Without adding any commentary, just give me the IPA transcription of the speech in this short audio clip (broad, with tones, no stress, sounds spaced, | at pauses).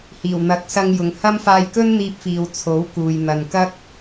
h iː˨˩ w n̪ ɐ˨˥ k̚ s ɐ˧ ŋ j ʊ˨ ŋ h ɐ˥ m f aː˧ j k ɵ˥ n n̪ iː˧ p̚ f iː˨ w t͡sʰ o˨˥ w k uː˨ j n̪ ɐ˨ n k ɐ˥ k̚